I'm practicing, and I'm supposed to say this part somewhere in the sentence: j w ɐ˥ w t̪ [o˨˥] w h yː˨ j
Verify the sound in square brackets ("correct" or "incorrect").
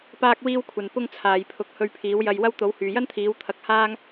correct